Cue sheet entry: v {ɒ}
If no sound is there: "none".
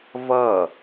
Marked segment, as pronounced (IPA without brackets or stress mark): ʌ